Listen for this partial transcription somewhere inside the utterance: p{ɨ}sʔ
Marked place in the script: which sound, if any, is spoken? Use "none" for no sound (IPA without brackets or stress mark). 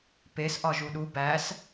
e